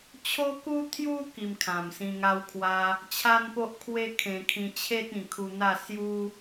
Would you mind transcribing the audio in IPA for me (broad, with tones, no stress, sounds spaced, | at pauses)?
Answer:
t͡ɕʰ o˦ k u˦ t̪ʰ j u˧ k i˧ m kʰ ã˨˩ m s ĩ˧ ŋ a˧ w kʰ w a˧ | t͡ɕʰ a˦ n p o˦ ʔ kʰ w e˦ kʰ ẽ˧ kʰ ĩ˧ t͡ɕʰ e˦ t̚ ĩ˨˩ kʰ u˧ n̪ a˥˧ s j u˦